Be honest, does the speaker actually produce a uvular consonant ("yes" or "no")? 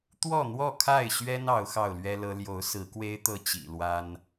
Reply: no